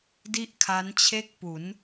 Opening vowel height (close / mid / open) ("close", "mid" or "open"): close